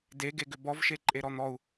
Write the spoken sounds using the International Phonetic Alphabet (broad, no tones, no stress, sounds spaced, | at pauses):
d e ɡ e ɡ ʏ b ɔ v ʃ e ǃʼ e ɾ ɔ n̪ ɔ u̯